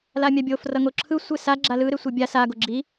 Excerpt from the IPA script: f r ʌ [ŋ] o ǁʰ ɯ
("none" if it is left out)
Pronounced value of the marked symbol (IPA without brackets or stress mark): ŋ